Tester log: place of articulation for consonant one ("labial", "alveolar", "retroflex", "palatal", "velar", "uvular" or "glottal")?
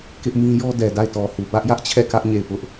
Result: velar